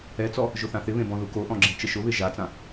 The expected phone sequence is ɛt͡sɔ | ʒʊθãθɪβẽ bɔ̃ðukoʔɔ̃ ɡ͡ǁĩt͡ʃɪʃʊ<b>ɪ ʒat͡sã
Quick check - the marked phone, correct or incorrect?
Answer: incorrect